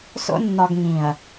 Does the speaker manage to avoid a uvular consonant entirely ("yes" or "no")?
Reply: yes